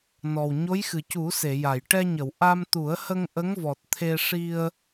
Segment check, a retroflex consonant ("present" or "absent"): present